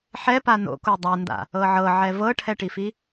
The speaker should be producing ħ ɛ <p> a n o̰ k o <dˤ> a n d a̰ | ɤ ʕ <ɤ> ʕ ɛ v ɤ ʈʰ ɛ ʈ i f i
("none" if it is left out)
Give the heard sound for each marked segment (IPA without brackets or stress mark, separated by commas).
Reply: p, dˤ, ɤ